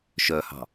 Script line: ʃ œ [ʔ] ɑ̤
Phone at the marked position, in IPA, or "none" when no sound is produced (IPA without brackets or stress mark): h